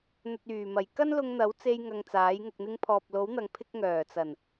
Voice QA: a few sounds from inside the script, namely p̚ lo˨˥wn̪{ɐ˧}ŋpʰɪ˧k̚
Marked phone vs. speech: incorrect: ɐ˨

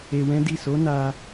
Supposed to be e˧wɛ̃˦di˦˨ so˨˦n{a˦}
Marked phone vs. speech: incorrect: a˧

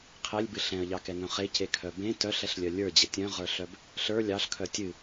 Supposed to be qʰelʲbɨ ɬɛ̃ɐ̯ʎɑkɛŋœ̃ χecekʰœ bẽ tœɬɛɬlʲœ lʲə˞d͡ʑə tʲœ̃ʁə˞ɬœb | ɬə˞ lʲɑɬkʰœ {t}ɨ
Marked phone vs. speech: incorrect: tʲ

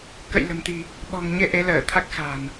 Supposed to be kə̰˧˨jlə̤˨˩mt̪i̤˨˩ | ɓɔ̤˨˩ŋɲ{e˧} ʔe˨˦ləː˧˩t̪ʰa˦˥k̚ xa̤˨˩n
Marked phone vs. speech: correct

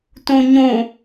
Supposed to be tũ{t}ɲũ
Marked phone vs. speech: incorrect: none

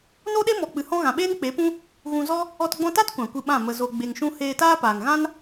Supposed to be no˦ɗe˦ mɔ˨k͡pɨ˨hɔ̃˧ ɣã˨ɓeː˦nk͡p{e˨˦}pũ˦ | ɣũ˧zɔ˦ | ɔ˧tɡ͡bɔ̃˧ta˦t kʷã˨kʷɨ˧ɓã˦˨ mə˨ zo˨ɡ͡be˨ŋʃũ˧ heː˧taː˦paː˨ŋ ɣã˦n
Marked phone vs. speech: correct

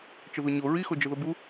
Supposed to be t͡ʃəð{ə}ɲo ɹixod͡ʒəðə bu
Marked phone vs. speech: incorrect: ʊ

